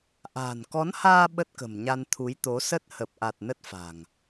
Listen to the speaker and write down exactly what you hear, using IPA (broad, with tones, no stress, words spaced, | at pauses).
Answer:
ʔa̤ː˨˩nkɔ˨˦nhaː˧ ɓə˦˥t̚kə̤˨˩mɲa˧n t̪ʰu˨˦jt̪o˨˦sə˦˥t̚ hə˨˩p̚ʔa˨˩t̚ nə˦˥t̚fa̤˨˩ŋ